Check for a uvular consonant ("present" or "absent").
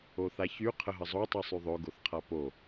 present